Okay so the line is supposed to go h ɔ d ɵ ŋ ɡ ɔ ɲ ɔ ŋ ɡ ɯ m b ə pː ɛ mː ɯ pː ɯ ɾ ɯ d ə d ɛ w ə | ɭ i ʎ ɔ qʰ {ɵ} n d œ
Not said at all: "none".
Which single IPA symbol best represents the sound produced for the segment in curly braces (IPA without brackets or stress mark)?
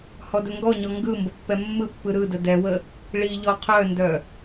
œ